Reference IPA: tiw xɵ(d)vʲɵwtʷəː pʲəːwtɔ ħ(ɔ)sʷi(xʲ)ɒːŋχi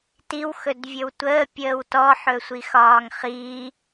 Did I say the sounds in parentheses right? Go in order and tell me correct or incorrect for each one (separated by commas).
correct, incorrect, incorrect